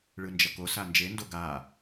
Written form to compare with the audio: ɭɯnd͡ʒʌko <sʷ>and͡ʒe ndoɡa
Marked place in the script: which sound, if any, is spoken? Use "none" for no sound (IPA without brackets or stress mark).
s